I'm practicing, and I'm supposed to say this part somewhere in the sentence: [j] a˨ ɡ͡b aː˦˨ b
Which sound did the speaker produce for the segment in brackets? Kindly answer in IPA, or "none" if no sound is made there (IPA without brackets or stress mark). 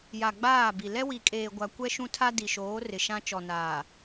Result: j